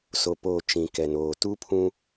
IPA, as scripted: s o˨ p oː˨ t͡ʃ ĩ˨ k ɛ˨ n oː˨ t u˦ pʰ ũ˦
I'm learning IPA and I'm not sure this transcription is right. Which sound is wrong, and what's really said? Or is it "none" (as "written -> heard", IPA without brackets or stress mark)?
none